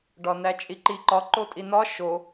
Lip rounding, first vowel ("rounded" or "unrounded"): rounded